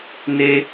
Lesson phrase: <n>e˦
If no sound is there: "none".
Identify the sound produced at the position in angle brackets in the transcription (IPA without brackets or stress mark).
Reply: n